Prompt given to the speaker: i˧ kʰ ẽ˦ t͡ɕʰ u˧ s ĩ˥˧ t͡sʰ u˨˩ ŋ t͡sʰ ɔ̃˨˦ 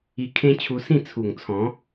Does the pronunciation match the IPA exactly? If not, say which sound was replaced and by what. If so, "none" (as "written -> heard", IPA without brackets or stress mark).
none